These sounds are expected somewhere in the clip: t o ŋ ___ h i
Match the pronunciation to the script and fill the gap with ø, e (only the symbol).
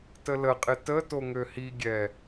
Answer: ø